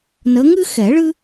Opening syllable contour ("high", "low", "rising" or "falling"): rising